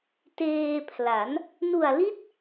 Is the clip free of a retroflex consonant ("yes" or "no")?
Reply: yes